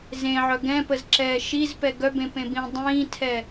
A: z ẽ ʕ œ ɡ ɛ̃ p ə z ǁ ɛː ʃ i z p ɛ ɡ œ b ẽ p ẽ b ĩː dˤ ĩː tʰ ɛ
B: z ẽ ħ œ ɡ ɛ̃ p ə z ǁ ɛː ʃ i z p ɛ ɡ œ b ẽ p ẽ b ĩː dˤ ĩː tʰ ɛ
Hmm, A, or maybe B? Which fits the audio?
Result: A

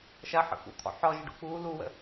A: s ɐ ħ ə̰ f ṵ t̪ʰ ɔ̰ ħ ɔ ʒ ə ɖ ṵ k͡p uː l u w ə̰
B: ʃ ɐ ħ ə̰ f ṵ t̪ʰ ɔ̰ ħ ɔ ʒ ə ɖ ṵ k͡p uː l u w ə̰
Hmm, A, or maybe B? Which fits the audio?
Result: B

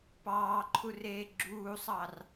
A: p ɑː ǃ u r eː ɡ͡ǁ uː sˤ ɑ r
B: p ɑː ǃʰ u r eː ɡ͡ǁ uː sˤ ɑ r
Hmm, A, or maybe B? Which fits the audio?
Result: B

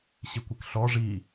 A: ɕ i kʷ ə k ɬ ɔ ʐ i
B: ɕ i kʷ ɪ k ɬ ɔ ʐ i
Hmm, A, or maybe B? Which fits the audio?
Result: B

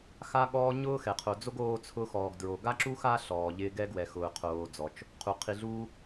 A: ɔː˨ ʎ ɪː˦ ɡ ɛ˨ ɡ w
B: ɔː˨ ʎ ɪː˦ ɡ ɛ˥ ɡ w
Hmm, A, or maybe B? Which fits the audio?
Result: B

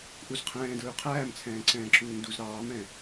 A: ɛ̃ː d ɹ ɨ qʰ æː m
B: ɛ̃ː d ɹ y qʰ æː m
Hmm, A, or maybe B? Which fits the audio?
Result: B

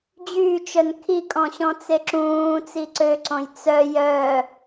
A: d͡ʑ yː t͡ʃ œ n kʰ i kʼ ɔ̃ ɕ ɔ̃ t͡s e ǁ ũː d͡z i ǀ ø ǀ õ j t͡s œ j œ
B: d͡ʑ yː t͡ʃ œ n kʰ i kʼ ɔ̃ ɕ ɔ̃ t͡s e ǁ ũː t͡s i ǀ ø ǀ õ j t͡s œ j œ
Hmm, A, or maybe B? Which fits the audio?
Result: B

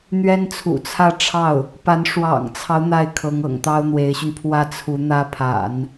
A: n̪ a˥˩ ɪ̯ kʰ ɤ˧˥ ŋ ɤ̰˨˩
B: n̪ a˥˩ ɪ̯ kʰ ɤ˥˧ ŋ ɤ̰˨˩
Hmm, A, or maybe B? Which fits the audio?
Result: A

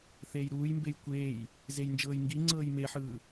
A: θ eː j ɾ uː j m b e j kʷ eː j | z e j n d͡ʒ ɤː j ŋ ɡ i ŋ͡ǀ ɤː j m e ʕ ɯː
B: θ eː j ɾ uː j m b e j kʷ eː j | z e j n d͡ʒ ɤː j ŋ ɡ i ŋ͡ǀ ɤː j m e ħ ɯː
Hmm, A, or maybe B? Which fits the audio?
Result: B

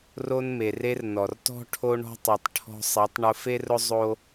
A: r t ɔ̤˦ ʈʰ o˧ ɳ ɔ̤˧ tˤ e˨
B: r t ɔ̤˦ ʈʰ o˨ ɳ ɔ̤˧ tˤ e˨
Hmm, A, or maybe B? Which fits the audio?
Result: A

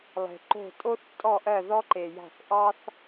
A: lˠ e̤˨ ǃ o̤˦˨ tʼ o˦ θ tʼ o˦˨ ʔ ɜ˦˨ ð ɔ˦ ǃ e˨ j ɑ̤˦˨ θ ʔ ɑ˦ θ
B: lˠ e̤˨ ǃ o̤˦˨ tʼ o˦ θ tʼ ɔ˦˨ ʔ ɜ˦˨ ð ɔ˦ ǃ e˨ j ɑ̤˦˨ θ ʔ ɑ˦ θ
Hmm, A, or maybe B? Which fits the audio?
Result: B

